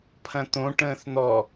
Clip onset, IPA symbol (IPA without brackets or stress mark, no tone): pʰ